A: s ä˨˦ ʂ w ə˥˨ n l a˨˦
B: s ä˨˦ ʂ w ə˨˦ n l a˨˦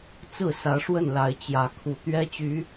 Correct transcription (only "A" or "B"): A